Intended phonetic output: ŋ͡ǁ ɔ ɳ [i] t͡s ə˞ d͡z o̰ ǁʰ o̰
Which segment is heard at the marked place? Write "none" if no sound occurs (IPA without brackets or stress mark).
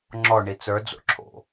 i